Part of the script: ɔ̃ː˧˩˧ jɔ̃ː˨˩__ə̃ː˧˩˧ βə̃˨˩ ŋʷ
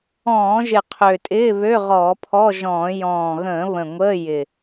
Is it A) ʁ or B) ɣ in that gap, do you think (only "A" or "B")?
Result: B